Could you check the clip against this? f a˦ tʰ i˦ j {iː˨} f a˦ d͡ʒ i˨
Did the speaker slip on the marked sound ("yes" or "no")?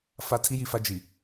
yes